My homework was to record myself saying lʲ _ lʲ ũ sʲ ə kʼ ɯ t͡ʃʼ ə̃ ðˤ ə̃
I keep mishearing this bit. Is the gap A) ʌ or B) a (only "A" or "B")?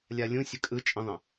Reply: B